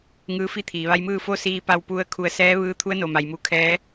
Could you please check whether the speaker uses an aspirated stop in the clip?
yes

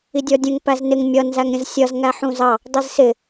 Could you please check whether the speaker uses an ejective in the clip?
no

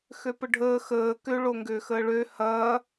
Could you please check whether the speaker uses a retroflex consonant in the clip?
yes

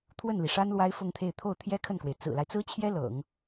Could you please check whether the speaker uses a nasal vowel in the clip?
no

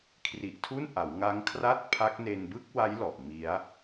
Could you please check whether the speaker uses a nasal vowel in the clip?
no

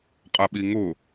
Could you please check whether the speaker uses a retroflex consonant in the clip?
no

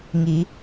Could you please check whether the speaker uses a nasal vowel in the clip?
no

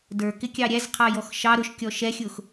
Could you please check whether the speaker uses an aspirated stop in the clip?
yes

